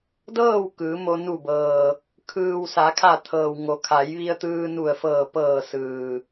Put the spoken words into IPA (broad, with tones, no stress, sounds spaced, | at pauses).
d ɤː˥˨ w k ɯː˩˧ m o˧ n u˧˩ b ɤː˩ | kʰ ɯː˩ w s a˩˧ kʰ a˧˩ t̪ʰ ɤː˩ w ŋ o˩˧ kʰ a˩˧ j ʋ i˧ ə̯ t̪ ɯː˧ n u˧˩ ə̯ f ɤː˧˩ p ɤː˧˩ s ɯː˩